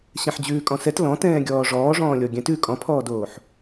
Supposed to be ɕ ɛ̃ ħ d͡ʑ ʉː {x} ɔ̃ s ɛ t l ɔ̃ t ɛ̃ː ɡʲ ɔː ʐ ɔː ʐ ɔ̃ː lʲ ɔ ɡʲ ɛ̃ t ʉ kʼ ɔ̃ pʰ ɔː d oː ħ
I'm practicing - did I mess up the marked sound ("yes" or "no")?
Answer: yes